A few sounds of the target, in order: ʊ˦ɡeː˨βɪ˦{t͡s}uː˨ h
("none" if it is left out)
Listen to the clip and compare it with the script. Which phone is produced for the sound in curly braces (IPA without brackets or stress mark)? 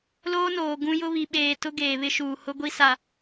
ʃ